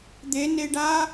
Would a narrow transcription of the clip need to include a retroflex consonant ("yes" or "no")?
yes